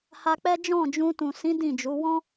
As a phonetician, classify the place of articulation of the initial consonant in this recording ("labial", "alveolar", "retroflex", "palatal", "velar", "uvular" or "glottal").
glottal